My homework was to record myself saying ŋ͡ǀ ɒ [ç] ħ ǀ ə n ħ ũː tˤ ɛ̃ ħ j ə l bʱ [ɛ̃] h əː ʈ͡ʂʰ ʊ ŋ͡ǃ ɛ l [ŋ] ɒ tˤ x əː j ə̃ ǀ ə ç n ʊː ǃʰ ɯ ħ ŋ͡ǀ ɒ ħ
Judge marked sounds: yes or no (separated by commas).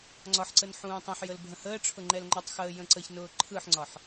no, no, no